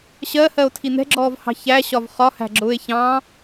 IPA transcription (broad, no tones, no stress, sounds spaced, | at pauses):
ɕ ɜ h ɜ o̯ tʰ i n ɛ̤ ɡ͡ǁ ɔː v h ɑ̤ ç æ ɕ ɒ v χ ɒ h æ̤ ɡ͡ǁ ʊː e̯ ç ɑ̃